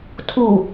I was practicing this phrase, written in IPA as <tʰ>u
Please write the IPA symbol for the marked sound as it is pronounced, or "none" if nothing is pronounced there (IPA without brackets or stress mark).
tʰ